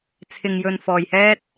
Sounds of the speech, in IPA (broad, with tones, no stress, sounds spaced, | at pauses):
t͡sʰ ɪ˧ ŋ j ɵ˧ n f ɔː˧ j h ɛː˥ t̚